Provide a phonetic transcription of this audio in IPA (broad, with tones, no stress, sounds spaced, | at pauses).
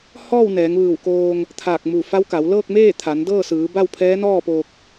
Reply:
h ɔː˥˨ w n ɛː˩˧ ŋ ʋ ɯː˧˩ w k oː˧ ŋ | t̪ʰ aː˧˩ k̚ m u˧˩ f a˧˥ w k a˩˧ w l ɤː˥˨ k̚ m eː˥˨ t̪ʰ a˩˧ n d ɤː˥˨ s ɯː˩˧ b a˥˨ w pʰ ɛː˧˥ n ɔː˥˨ p oː˧ k̚